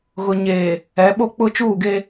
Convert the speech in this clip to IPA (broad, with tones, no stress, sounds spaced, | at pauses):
ɣ ʊ˨ ɲ eː˨ | ɛ˨˦ ɓ o˦ k͡p ʊ˦ t͡ʃ uː˦˨ ɡ e˦